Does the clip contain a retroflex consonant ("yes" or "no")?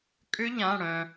yes